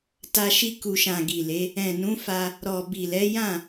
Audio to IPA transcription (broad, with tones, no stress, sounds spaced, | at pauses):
t a˧ ʃ i˧ k u˨ ʃ ã˨ ɡ i˨ l e˨˦ | ɛ̃˨ n ũ˨˦ f a˧ | ɾ ɔ˨ b i˨ l ɛ˨˦ j ã˦˨